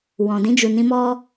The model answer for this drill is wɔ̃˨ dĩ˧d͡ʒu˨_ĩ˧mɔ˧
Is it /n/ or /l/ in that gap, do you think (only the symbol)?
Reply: n